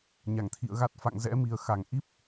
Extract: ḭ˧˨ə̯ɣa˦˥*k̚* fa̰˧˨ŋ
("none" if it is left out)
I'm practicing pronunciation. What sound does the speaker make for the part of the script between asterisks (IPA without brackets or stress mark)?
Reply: t̚